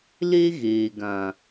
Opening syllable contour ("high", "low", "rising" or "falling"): high